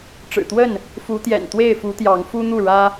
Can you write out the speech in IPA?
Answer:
ʈ͡ʂ ɻ̩˨˩ t̪ w ə˥˨ n | f u˨˦ t̪ j ɛ̰˨˩ n t̪ w e˥˨ ɪ̯ f u˨˦ t̪ j ɑ˨˦ ŋ f u˦ n̪ u˥˨ ɻ ä˦

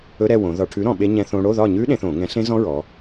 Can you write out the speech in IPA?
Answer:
ɵ˧˥˧ ɾ ɛ˥˨ w õ˩˧ ð ɒ˧˩˧ ʈʰ ʉ˨˥ ɾ ɔ̃˧˩˧ ɓ e˦˥ ɲ ɛ̃˦˥ θ õ˦˥ ɽ o˧˥˧ ð ɒ˥˨ ɲ ʉ˦˥ ɗ ẽ˩˧ θ õ˧˩˧ ŋ ɛ̃˨˥ ɬ ẽ˦˥ z ɔ̃˦˥ ɹ ɔ˩˧

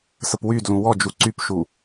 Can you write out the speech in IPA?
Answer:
s ə p w y d l ũ w ɔ d͡ʒ u ǀ y p ʃ u

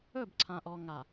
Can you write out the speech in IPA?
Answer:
ɵ˦˨ b ǀʰ ã˨ ʔ ɔ˨ ŋ a˨

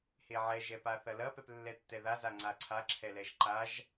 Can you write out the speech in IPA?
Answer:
h e ʕ ɛ ʒ ɛ p a θ ɐ l ɐ p ɛ p lː ɛ tː ɛ ð a z a ŋ͡ǀ a ǀʰ a ǁʰ ɛ l ɛ ʒ ǃ a ʒ

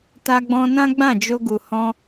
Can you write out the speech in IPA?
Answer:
t a˧ ɡ͡b ɔ̃˧ n ã˦ ɡ͡b ã˦˨ d͡ʒ o˧ ɡ u˨ h ɔ̃˧

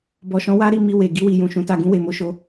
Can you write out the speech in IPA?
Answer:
b ɔ˨ ʃ ɔ̃˨˦ w a˦ ɾ i˦˨ m i˧ w e˨ ɡ i˧ w i˨ j ũ˨ ʃ ũ˨˦ t a˧ ɡ ũ˧ w e˨ m o˨˦ ʃ o˧

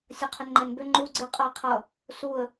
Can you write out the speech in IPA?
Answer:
sʲ ʌ qʰ ʏ n ŋ͡ǃ ɛ n b ʏ ŋ͡ǃ u ɡ͡ǀ ɪ qʼ ʌ ɪ̯ qʰ ʌ | s u ə̯

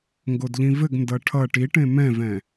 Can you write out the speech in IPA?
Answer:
ŋ ɡ o d ʎ ĩ v ɘ ɡ n d ʌ ʈʰ ʌ ʈ i ʈ ẽ m ɛ̃ v ɛ̃

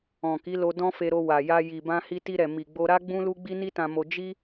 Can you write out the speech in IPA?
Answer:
ɔ̃˨ k i˨˦ l o˧ d ɔ̃˦ f e˧ ɾ o˧ w a˨ j a˧ j i˨ b ã˧ h i˧ t i˧ ɾ ɛ˨ m i˨ ɡ͡b o˧ ɾ a˦ ɡ͡b ũ˦ l u˦ ɡ͡b i˦ n i˦ t ã˧ m o˧ d͡ʒ i˦

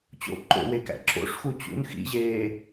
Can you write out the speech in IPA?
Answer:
t͡ɕ o̰ ǃ o̰ w e k æ̰ ǁ o̰ ʂ x u t͡ɕ ṵ n x ḭ ʑ eː

